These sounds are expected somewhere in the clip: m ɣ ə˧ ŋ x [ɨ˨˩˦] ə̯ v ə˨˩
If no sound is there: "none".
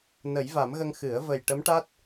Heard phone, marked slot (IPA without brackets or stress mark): ɨ˨˩˦